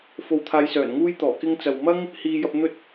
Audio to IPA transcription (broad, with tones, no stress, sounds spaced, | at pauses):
f o˧ w t̪ʰ aː˧ j s œː˨˩ n ŋ uː˥ j t̪ ɔː˨˩ k ɪ˥ ŋ t͡s ɐ˨ w m ɐ˥ ŋ | h iː˧ j ɐ˧ p̚ n̪ ɵ˥ t̚